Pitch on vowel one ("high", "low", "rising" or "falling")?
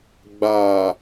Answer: low